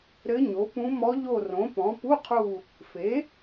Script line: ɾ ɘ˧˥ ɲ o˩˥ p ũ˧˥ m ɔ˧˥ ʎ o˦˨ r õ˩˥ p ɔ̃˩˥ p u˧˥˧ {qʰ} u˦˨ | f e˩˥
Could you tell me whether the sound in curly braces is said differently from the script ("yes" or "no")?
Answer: no